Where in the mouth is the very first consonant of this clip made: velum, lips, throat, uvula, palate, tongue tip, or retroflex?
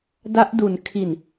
tongue tip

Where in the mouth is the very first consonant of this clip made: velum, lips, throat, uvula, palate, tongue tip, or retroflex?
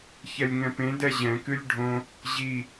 palate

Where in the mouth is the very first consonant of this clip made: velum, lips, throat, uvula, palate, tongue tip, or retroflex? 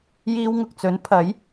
palate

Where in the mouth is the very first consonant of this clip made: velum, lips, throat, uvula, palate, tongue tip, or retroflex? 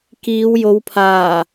velum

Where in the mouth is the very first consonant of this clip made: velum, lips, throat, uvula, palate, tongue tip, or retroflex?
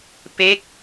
lips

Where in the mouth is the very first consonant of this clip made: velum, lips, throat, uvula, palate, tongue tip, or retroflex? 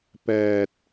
lips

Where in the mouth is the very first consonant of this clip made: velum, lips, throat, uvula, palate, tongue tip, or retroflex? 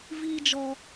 lips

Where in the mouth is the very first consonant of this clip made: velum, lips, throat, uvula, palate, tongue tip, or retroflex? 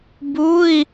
lips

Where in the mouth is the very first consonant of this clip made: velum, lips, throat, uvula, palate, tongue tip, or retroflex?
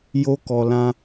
palate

